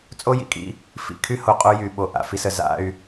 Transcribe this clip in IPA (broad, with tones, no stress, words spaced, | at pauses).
t͡sʼo˦jḭ˨kʼḭ˦ | fḭ˨kʰy˦ ho˨qʼo˦jy˨ ɓo˦˨ʔa̰˦fi˦sə˨ za̰˦y̯